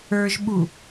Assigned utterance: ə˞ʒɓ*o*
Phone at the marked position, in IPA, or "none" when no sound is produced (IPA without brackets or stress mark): u